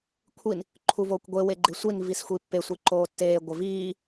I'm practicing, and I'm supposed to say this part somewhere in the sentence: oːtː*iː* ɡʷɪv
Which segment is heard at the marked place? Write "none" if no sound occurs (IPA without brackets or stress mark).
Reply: eː